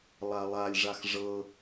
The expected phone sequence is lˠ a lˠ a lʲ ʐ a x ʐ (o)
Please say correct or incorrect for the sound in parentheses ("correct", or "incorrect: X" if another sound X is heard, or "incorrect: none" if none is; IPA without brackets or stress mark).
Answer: incorrect: ɤ